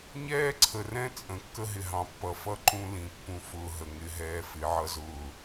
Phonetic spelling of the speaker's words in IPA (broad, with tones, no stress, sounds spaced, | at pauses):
ɲ ɛː˦ ǀʰ ə˨ r ɛ̃˦ t͡sʼ ə̃˨ kː ə˦ ɦ ɪ˨ ɦ ɑ̃˨ pː ʌ˨ f ʌ˦ ǃ ũ˦ l ĩ˨ pː ũ˨ f ʊː˨ ɦ ə˨ ŋ ɪ˦ ɦ ɛː˦ f ɪ˨˦ ʕ ʌ˦ z ʊː˦˨